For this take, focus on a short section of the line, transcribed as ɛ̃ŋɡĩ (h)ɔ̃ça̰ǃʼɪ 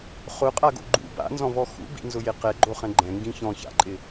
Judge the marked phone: incorrect: ç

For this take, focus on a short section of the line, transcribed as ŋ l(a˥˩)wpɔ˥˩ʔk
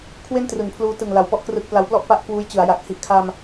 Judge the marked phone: incorrect: a˨˩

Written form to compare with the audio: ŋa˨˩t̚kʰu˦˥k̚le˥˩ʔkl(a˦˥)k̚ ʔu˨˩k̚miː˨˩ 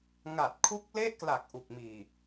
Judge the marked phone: incorrect: a˨˩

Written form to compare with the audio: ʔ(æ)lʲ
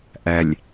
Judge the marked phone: correct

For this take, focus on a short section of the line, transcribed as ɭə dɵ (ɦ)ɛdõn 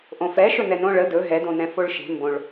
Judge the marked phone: correct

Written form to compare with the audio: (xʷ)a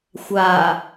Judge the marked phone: correct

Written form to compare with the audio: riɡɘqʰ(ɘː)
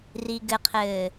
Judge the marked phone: correct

